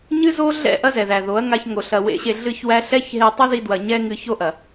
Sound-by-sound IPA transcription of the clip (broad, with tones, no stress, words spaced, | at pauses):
ɲɨ˦zo˦ɮɛ̰˦˨ ʔɐ˦zɛ˨ðæ˨ ðo˨˦ɐ̯ŋa˧çŋo˨ ɬɐ˧wḛ˦ɕe˧ ɮɨ˦çwæ˦ ɬɛ˦çɦe˧ tˤɐ˦ði˧dwɐ˨ ɲɛ˦ŋɨ˧ ço˦ʔɐ˨